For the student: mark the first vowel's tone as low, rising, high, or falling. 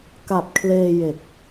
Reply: low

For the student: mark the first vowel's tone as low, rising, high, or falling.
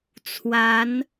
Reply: rising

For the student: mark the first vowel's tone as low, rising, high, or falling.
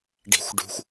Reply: low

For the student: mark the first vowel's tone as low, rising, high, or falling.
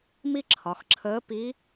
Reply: high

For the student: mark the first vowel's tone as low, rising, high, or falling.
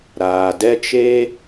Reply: low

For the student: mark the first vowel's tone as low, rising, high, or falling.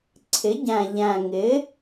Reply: rising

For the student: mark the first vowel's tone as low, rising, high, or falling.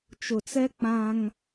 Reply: low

